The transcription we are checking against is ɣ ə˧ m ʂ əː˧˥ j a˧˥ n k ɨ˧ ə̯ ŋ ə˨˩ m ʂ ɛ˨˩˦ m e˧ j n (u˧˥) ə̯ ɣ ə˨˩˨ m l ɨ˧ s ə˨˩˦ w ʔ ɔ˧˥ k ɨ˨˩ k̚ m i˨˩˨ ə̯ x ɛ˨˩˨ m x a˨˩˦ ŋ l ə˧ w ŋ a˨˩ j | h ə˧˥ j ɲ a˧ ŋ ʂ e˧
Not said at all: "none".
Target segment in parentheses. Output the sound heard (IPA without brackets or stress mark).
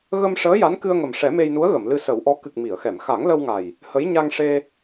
u˧˥